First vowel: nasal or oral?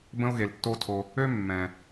nasal